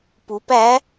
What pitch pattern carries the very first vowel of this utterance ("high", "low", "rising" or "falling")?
rising